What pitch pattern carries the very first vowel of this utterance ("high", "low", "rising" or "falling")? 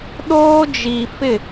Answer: high